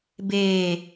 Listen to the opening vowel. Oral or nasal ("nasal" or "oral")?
oral